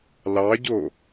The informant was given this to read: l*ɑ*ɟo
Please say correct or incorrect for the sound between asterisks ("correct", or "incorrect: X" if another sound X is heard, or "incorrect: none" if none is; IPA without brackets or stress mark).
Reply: correct